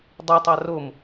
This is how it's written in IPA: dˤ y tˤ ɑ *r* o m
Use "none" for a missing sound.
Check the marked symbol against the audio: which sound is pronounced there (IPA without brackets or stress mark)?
r